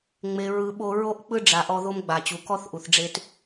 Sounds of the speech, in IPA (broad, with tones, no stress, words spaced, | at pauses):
ŋ͡me˨ ɹɯ˨ ɓo˧ ɹo˦ʔk͡pɯ˦ɖ͡ʐa˨ʔɔ˧ ðo˦mɡ͡ba˨t͡ɕu˨ kɔ˦θ ʔu˨θɖ͡ʐe˧t